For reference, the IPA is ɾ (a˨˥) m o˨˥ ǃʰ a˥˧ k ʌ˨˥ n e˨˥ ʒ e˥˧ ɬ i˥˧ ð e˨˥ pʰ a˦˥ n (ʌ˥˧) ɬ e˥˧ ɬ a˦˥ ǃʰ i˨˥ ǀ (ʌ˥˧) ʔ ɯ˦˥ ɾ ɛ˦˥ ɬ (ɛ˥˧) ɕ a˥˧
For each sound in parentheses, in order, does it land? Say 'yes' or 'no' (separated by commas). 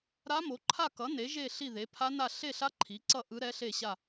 no, no, yes, no